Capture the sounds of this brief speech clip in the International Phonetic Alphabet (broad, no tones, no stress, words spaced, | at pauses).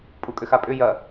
pʼukʼʏxapʼʏ jɐ